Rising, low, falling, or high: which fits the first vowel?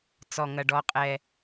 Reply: low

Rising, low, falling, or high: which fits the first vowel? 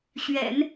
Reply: low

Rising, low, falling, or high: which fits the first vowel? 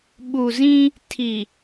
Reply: low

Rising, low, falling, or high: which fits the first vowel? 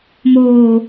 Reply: low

